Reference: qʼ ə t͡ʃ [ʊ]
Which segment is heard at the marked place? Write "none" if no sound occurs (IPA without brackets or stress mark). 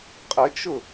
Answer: ʊ